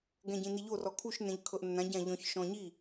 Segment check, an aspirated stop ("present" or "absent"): present